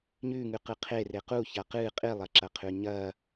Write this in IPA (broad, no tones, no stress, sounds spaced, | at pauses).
ɲ ʉ ŋ ʉ q ɨ qʰ e r e q u ç a q ɨ qʼ i lˠ ɐ ǁ ɐ qʰ ʉ ɲ ɐ